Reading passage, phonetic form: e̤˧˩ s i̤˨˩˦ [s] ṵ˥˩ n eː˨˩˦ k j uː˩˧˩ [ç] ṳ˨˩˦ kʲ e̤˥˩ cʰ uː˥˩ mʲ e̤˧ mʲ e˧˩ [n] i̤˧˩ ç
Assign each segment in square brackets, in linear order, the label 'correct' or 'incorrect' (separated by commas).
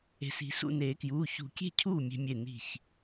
correct, correct, correct